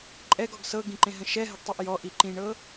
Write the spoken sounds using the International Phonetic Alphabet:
ǃʼ ɛ ɡ ɔ ɡ s ɤ ɡ ĩ ǃ ẽ ɦ ə̃ ʃ ɛ ɦ ə ɡ tˤ i ʔ j ɔ ʔ i ǃ ĩ ɳ ɤ

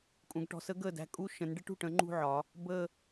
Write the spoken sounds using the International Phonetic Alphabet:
kʼ ũ˩˧ ɡ ʈ ɔ̤˩˧ s ə˧˥ ɡ əː˥˩ d æ̤˥˧ kʼ u˥˧ ʃ ə̃˩˧ n ɖ ɪ˧˥ ʈ ṳ˥˩ ʈ ə̃˧˥ ŋ͡ǃ ṳ˥˧ ʕ ɒ˩˧ | b ə˥˧

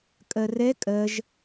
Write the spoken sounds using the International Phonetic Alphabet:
kʼ ɜ r ɛ kʼ ɜ ʒ

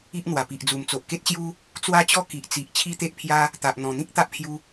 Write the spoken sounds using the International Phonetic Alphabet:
i˦ ʔ n̪ w a˨˩ p i˨ ʔ d͡z u˨˩ m t͡s o˨ ʔ k e˦ t̚ ɕ j u˦ | t͡s w a˦ t͡ɕ ɔ˦ k i˨ ʔ t͡s i˨ ʔ t͡ɕʰ i˦ t̪ e˦ ʔ pʰ j a˦ | t̪ a˨ ʔ n̪ ɔ̃˨˩ n̪ ĩ˦ k̚ t̪ a˦ ʔ pʰ j u˧

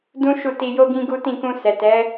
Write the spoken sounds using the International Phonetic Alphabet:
d ũ˦ ʃ u˦˨ t i˧ j o˦ ɡ ĩ˦ ɡ u˦ t ĩ˦˨ k ũ˧ s ɛ˨ t ɛ˨˦

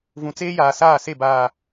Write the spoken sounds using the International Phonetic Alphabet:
v ũ˨ t͡s eː˦ j aː˨ s aː˦˨ s e˦˨ b aː˨

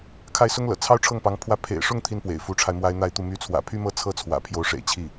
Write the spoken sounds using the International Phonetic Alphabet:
kʰ a˥˩ ɪ̯ s ʊ˥ ŋ l ɤ̰˨˩ t͡sʰ ɑ˥ ʊ̯ ʈ͡ʂʰ ɤ˥˩ ŋ p ɑ˧˥ ŋ pʰ w ä˥˩ pʰ ḛ˨˩ ɪ̯ ʂ ʊ˥˩ ŋ t̪ʰ i˥ n p w ḛ˨˩ ɪ̯ f u˧˥ ʈ͡ʂʰ a˧ ɪ̯ m w a˥ ɪ̯ n̪ a˥ ɪ̯ t̪ u˥˩ m y˧˥ t͡sʰ w ä̰˨˩ pʰ y˥ m ɤ˥ t͡sʰ ɤ˥ t͡sʰ w ä̰˨˩ pʰ j o˧˥ ʊ̯ ʂ ḛ˨˩ ɪ̯ t͡ɕʰ i˥˩

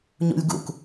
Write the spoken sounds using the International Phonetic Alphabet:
ɲ ṵ lʲ ɡ ṵ k

